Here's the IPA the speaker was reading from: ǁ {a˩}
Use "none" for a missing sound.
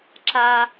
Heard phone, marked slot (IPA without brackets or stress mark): a˩